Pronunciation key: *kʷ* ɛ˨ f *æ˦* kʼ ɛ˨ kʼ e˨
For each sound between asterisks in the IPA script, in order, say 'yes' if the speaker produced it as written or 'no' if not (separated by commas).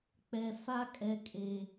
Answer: no, no